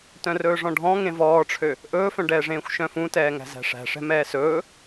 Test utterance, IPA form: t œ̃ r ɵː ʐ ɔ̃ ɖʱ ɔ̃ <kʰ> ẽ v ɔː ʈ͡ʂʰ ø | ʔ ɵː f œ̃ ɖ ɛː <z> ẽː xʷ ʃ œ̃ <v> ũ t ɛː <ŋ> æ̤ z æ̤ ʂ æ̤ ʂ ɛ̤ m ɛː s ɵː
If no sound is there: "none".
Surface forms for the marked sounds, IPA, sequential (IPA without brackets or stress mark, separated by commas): ŋ, ʐ, f, ŋ